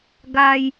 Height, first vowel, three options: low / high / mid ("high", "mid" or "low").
low